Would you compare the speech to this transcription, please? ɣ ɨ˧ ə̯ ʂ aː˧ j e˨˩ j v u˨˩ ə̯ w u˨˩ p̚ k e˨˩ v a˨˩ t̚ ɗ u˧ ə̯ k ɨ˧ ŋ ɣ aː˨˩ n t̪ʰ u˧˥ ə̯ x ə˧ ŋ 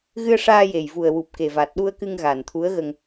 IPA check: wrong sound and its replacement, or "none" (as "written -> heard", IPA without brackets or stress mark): x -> ɣ